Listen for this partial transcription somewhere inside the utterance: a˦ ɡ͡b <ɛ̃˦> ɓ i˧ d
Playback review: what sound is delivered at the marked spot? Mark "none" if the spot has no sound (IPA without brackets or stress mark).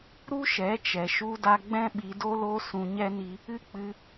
ɛ̃˦